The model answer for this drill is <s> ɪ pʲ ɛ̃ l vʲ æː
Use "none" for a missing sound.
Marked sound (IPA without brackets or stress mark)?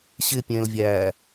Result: ɕ